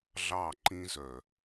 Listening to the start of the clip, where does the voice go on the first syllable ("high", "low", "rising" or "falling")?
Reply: falling